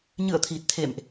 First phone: ɲ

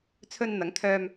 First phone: t͡sʰ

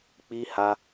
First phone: k͡p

